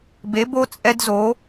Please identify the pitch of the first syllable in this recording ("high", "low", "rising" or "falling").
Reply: rising